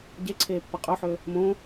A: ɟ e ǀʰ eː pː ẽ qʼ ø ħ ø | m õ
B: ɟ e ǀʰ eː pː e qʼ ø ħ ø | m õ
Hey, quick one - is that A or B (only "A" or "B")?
B